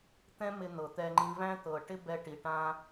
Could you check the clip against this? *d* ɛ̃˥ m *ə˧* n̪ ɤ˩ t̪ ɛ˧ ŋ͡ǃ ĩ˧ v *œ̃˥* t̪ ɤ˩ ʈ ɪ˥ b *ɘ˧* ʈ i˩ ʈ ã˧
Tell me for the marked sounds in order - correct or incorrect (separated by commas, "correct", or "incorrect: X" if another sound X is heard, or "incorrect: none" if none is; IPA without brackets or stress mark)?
incorrect: t̪, incorrect: ɪ˧, incorrect: æ̃˥, incorrect: ɛ˧